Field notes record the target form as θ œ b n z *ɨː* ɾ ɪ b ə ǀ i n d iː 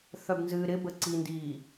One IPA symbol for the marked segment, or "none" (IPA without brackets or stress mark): ɨː